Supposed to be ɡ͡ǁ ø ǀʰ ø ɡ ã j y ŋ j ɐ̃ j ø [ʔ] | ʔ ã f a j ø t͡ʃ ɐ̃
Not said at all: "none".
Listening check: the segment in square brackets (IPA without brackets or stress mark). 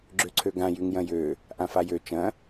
none